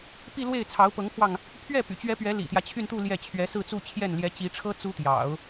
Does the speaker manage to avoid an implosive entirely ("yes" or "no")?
yes